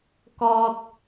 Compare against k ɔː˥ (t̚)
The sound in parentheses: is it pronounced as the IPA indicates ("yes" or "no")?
yes